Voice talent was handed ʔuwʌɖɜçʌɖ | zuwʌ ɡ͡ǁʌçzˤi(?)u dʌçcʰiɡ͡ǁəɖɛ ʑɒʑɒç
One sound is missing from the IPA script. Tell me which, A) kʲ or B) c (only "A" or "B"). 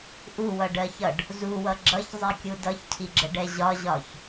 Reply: A